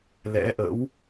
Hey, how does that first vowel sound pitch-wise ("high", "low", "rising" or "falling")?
rising